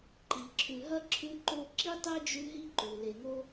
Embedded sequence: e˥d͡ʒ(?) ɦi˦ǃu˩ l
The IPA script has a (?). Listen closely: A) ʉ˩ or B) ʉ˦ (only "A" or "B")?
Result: B